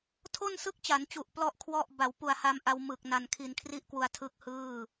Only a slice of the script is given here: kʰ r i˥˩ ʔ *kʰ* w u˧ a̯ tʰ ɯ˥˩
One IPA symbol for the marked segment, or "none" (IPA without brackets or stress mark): k